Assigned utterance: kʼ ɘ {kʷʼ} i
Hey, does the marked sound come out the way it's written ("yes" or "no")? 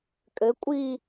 yes